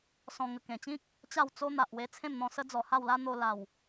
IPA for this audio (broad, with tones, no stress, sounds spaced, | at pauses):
s ɔ̃˧ ŋ ə˨˩ k ẽ˨˩ t͡ɕ ĩ˦ k̚ | t͡ɕ a˥˧ w t͡s o˦ n̪ a˨ ʔ w e˧ t͡sʰ ẽ˥˧ m n̪ ɔ̃˧ s ə˦ d͡z ɔ˨˩ h a˥˧ w l a˦ n̪ o˧ l a˨˩ w